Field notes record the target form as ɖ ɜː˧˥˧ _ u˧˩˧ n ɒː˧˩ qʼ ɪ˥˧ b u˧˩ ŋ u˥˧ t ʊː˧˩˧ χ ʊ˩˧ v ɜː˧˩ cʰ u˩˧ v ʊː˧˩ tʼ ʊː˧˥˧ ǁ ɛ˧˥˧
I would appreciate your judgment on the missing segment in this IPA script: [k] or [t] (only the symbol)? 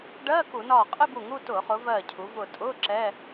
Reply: k